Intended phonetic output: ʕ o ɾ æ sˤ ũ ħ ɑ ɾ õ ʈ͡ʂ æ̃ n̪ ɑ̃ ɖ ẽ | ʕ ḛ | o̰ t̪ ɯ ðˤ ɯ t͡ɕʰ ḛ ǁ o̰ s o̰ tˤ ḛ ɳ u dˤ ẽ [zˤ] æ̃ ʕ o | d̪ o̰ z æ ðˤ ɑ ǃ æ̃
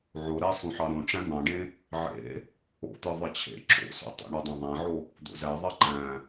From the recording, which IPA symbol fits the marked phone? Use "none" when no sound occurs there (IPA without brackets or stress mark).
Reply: ðˤ